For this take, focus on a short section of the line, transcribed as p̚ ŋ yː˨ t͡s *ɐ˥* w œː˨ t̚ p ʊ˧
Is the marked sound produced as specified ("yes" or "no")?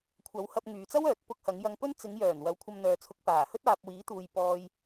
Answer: yes